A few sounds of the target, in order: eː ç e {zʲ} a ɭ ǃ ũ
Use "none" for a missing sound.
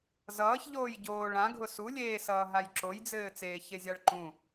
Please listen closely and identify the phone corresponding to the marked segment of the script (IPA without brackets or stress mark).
zʲ